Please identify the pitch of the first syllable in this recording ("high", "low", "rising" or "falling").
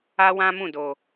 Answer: high